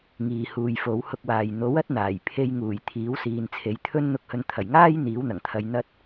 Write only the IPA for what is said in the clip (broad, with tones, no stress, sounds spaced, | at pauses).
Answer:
ŋ iː˨ h uː˨ j f o˨˥ w h ʊ˧ k̚ w aː˨ j n̪ o˨˥ w ɐ˥ t̚ n̪ aː˨˩ j pʰ e˧ j ŋ uː˨˩ j t̪ʰ iː˨˥ w s iː˨ n t͡sʰ e˨˥ j t̪ʰ ɵ˥ n n̪ ʊ˧ k̚ h ɵ˨ n t̪ʰ ɐ˨˩ j ŋ aː˥ j n̪ iː˨˥ w n̪ ɐ˨˩ ŋ t̪ʰ ɐ˧ j n̪ ɐ˥ t̚